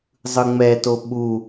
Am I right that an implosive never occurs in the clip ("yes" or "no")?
no